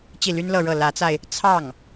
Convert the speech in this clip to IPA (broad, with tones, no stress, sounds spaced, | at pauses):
t͡ɕ i˥˩ l y˥ n l ɤ˥˧ ɻ ɤ˥˩ l ä˧˥ t͡s a˧ ɪ̯ | t͡sʰ ɑ˥˩ ŋ